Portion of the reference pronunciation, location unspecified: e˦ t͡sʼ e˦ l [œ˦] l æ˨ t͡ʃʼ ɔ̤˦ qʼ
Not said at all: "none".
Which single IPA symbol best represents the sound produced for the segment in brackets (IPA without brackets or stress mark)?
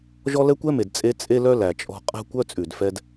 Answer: œ˦